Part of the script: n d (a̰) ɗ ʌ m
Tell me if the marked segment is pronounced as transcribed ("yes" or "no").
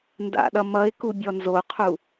yes